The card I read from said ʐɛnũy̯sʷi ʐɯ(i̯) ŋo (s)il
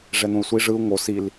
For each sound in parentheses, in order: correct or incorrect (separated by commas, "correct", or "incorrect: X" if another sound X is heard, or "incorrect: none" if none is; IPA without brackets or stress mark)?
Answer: incorrect: u̯, correct